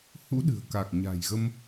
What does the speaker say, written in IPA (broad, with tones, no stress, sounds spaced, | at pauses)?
h ṵ˧˥ ɗ ɨ̤˨˩ ə̯ k a˨˩ k̚ ɲ a̤˨˩ j ɣ ə˧ m